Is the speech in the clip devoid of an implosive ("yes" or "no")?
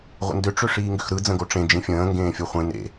yes